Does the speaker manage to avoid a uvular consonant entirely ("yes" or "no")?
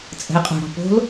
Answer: no